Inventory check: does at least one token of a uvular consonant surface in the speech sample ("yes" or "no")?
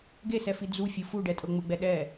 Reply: no